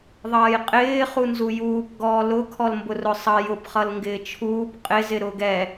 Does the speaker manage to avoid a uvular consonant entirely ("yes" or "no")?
no